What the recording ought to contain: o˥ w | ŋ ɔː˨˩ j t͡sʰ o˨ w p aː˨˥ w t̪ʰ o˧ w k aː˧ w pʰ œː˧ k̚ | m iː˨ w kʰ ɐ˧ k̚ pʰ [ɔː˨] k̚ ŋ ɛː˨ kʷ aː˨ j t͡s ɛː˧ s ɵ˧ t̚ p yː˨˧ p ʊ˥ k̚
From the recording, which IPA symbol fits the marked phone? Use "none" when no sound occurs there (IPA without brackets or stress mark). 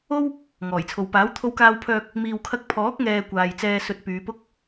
ɔː˨˥